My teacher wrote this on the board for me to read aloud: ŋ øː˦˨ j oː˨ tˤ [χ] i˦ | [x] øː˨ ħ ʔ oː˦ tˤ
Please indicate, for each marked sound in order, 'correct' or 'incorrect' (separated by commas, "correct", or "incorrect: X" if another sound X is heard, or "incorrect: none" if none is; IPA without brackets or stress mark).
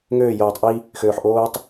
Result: incorrect: ʔ, correct